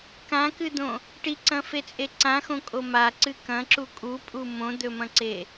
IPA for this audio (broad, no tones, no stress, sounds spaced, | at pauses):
k ã k ɨ d̪ õ | ʈ i ǀ ɐ̃ f e t͡sʼ e ǀ ã x õ kʼ o m a ǀ ɨ k ɐ̃ ǁ u kʼ u pʼ u m õ d̪ ɵ m ɐ̃ ǀ e